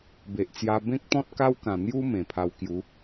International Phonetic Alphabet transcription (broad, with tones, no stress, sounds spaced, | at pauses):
b e˨ ʔ t͡s j a˧ b ẽ˦ k̚ t̪ ɔ̃˦ t̚ k a˦ w k ã˨˩ n̪ j u˦ m ẽ˨˩ pʰ a˧ w k j u˨˦